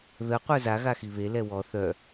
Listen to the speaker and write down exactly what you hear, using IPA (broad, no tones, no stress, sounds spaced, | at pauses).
ð ə qʷ œ z a ɣ a x i β e l ɛ w ɔ θ œ